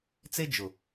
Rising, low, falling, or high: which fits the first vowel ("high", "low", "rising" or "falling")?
high